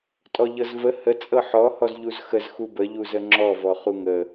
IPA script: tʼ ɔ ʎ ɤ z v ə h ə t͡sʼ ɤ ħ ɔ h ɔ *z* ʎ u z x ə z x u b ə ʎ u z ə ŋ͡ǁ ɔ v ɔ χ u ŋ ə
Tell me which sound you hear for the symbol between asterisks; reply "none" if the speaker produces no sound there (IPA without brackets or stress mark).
z